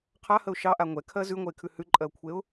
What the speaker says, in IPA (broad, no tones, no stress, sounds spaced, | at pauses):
qʰ a h ə ʊ̯ ʃ ɑ ʔ a ŋʷ ɛ kʰ ɜ z ʉ ŋʷ ɜ ɪ̯ kʰ ʉ h ʉ ǃʼ ɜ ʊ̯ kʷʰ e ʊ̯